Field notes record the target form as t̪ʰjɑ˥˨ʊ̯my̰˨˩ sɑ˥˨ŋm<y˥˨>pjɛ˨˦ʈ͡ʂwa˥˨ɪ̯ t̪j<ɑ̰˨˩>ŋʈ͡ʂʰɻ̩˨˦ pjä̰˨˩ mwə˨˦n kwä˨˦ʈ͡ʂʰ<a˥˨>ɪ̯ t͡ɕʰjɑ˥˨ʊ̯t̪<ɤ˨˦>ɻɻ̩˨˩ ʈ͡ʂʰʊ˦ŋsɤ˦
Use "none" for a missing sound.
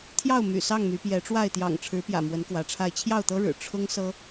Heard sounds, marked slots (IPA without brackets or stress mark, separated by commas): y˨˦, ɑ̰˨˩, a˥˨, ɤ˦